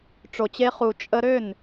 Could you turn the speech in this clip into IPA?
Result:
ʈ͡ʂ o˨ t͡ɕ e˧ χ u˨ t͡ʃʼ ə˧ ɾ ø˦˨ n

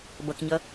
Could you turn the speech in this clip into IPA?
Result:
b ʌ k ɲ ʌ

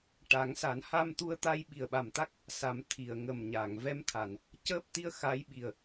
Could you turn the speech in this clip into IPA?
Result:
ʈ a˨˩˦ ŋ s a˨˩˦ n h a˧ m t̪ u˧ ə̯ t̪ a˧ j ɓ i˨˩ ə̯ ɓ a˨˩ m t̪ a˦˥ k̚ | s a˨˩˦ m t̪ʰ i˨˩˨ ə̯ ŋ ə˨˩ m ɲ a˨˩˨ ŋ v ɛ˧˥ m t̪ʰ a˨˩˨ n | c əː˦˥ p̚ t̪ i˧˥ ə̯ x a˧˥ j ɓ i˨˩ ə̯

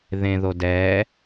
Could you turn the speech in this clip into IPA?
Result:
ð ẽ ð o d ɛ

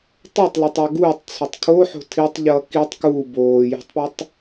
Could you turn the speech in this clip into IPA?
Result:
tˤ ɛ tˤ l ʌ tˤ a ɡ uː tˤ t͡sʰ o tˤ kʰ o ħ o̤ tʰ i tˤ ʎ ʌː k i tˤ k uː b oː j o̤ tˤ p a tˤ

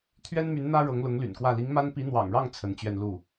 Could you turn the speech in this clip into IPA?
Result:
t̪ʰ ɥ ɛ˥ n m y˧˥ n n̪ ä˥ ɻ ɤ˧˥ ŋ l ʊ˧˥ ŋ l y̰˨˩ n k w ä˥˩ l i˧˥ ŋ m a˥ n p i˧˥ n̪ w ɑ̰˨˩ ŋ ɻ ɑ˥˩ ŋ t͡sʰ ə˧˥ n t͡ɕ ɥ ɛ˥˧ n l u˥˩

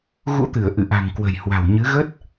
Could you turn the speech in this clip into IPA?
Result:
ɣ ṵ˧˥ t̪ ɨ˧˩ ə̯ ʔ ɨ̰˧˨ ʔ a̤˨˩ ŋ k w ə̤˨˩ j h w a̤˨˩ w ɲ ɨ˨˦ ɣ ə˦˥ t̚

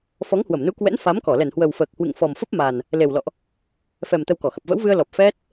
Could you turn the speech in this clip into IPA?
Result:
f ɔ˨˦ ŋ h w ə˧˩ m n u˨˦ k w ɛ̰˧˥ n f a˨˦ m k ɔ˧˩ l ɛ˧˩ n h w ə˨˩ w f əː˨˩ k̚ h w ɨ̰˧˨ ŋ f ɔ˨˩ m f ə˦˥ p̚ m a˨˩ n | l e˨˩ w l ɔ̰˧˨ ʔ | f ɛ˨˩ m t̪ ə˧ w k ɔ˧˩ x ə˨˩ p̚ v ə̰˧˥ w v ɨ˧ ə̯ l ɔ˨˩ p̚ f ɛ˦˥ t̚

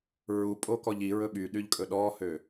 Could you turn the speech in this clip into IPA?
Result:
ɹ u pʼ o k ɔ ʎ i ɹ ɵ ɓ y ɗ y ʎ kʼ ɵ ɗ ɔ h ø

